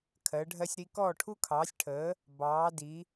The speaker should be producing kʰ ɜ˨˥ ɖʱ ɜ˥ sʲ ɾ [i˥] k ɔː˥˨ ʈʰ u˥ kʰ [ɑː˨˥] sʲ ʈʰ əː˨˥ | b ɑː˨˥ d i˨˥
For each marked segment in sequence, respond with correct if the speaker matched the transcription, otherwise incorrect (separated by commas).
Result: correct, correct